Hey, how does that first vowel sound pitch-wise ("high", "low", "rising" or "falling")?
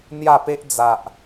falling